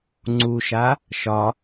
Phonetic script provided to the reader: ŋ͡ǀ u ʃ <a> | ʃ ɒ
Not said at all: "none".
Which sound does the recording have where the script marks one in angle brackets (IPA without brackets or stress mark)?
a